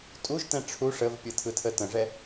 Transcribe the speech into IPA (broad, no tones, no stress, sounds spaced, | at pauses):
tʼ u ʒ t ɛ̃ ʈ͡ʂʰ u ʂ ə v pʲ ɯ tʰ ɯ tʰ ə t ə̃ ʐ ɛ